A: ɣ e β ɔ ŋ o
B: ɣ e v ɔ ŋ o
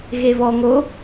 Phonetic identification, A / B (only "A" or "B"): A